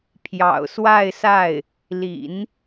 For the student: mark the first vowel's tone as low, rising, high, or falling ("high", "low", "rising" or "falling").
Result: low